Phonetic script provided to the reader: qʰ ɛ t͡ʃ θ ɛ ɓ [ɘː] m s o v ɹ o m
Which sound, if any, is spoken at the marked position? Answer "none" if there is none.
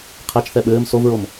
ɘː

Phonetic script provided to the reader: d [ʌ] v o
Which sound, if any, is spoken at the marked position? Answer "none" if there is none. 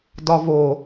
ɒ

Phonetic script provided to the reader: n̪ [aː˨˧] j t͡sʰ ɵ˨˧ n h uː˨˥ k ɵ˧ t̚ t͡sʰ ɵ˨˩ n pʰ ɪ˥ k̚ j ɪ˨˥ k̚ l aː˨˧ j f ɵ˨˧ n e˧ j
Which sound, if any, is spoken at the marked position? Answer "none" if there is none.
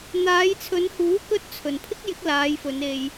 aː˨˧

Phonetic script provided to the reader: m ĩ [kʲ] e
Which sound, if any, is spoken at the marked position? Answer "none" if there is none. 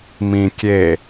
kʲ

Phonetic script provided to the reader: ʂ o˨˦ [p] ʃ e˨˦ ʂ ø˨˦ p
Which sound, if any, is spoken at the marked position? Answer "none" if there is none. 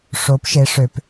p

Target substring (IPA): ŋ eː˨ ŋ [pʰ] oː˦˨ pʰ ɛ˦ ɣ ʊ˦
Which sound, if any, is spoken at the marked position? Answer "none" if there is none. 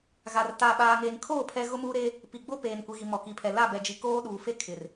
kʰ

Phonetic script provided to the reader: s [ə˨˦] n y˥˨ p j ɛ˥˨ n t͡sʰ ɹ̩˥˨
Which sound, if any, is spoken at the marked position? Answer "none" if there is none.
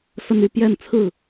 ə˦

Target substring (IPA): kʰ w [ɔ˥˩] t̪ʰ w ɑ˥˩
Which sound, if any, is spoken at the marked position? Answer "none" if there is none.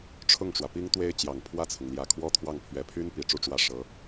ɔ˥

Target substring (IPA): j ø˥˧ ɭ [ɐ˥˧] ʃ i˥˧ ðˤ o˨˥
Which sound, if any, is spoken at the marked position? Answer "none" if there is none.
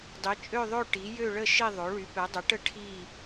ə˥˧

